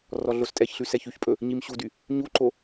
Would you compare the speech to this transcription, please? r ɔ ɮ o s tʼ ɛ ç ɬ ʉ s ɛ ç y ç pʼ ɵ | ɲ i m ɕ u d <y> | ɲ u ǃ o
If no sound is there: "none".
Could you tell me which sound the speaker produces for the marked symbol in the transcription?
y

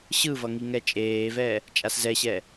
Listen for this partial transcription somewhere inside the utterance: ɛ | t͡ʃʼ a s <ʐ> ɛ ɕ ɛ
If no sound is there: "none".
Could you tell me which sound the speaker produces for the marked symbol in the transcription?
z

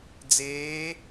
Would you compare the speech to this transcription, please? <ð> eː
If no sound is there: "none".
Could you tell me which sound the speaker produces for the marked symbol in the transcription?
d͡z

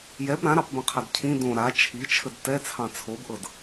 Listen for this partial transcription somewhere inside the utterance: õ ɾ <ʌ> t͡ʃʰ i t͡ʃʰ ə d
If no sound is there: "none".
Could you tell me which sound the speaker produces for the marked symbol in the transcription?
a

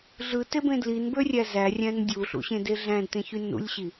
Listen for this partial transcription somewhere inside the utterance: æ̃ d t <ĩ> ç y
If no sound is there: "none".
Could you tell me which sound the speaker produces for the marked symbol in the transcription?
ẽ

